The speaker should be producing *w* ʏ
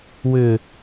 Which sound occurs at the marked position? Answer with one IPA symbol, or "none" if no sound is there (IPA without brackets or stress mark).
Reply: w